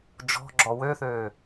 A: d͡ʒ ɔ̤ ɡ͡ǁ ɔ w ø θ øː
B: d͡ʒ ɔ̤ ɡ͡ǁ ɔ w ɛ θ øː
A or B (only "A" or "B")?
A